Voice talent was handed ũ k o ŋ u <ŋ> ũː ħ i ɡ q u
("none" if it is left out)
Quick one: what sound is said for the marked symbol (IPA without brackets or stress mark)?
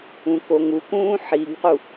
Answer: k